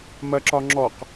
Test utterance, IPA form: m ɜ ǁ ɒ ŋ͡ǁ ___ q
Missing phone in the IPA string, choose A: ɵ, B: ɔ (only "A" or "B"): B